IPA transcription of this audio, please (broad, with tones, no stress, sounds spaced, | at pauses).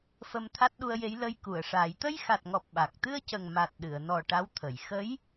f ə˧ m t̪ʰ a˦˥ t̚ ɗ u˧ ə̯ j e˧˥ j l ə˧ j k u˨˩˨ ə̯ ʂ aː˨˩˦ j t̪ ə˧ j x a˨˩ t̚ ŋ ɔ˨˩ p̚ ɓ a˨˩ k̚ t̪ ɨ˧ ə̯ c ə˨˩ ŋ m a˨˩ t̚ ɗ ɨ˨˩˨ ə̯ n ɔ˨˩ ʈ a˧˥ w t̪ʰ ə˨˩˨ j x ə˧˥ j